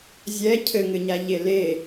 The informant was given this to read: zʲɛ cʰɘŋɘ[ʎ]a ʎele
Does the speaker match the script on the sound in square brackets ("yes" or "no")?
no